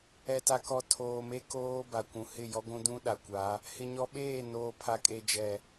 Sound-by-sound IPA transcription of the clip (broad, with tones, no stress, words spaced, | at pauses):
ɛ˨ta˨kɔ˨ tʰoː˨me˦ koː˦ ba˨kʷũ˨ hɪ˦˨jɔ˦ɡʷũ˦ dũ˦ ɗa˨kʷa˨˦ | hɪ˨ɲɔ˨ ɓeː˦˨ noː˨ pʰa˨kʼe˨ d͡ʒɛ˨